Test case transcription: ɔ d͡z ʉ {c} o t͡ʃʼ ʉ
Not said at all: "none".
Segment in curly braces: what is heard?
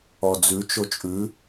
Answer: t͡ʃ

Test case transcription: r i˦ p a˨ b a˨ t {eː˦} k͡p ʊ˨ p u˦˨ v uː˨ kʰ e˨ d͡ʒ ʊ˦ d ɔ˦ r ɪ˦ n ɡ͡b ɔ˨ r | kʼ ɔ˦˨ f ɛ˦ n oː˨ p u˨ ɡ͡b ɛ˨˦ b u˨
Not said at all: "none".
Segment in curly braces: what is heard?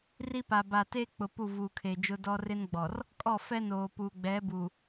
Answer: eː˦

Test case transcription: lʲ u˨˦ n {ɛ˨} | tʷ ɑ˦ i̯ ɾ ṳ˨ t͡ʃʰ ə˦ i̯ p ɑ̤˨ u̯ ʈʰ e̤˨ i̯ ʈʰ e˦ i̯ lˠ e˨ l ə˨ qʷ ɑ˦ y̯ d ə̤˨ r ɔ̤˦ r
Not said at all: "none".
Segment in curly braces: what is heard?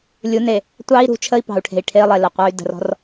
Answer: e˨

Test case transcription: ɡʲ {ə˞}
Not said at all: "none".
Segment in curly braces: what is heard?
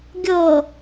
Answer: ɤ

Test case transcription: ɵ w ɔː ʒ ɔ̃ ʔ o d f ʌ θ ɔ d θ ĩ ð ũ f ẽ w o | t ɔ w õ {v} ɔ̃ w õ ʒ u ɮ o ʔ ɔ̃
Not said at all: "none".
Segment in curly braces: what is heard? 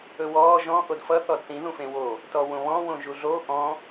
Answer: β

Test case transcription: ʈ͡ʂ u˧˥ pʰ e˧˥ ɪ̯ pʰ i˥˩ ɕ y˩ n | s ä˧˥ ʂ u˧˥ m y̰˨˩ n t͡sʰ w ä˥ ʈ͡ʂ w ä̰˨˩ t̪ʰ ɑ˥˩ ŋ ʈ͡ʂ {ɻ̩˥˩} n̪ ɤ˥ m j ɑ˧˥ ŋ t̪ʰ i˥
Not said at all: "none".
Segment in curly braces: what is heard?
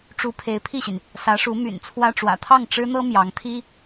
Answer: ɻ̩˥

